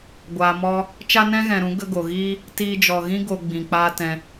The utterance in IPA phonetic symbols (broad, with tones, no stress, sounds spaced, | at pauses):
ɡʷ aː˨ m ɔ˧ | t͡ʃ a˦ n ɛ̃˦ ɣ ɛ̃˨ ɾ ũ˨˦ ɡ ə˦ ɡ o˨ ɣ iː˦ | t iː˧ d͡ʒ ɔ˨ ɣ ĩ˦ ɡ o˧ ɡ͡b ĩ˨ k͡p aː˦ t ɛ̃˧